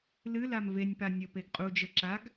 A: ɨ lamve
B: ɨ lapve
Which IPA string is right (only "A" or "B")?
A